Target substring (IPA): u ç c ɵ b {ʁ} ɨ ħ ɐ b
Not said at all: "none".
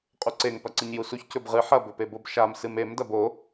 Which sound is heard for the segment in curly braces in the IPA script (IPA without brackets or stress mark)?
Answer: ʁ